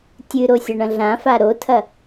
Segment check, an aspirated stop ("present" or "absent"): present